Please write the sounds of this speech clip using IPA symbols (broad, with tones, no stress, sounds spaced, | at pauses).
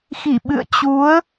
x i˧˩ ɓ ɨ̰˧˨ ə̯ t͡ɕ u˨˦ ə̯